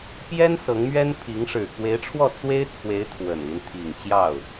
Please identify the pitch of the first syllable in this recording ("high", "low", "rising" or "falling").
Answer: high